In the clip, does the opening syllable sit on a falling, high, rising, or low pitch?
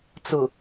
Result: low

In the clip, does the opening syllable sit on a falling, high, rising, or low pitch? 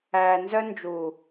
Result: low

